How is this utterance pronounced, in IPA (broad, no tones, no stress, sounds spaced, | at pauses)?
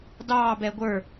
d ɑː b ɛː ɡʷ ə˞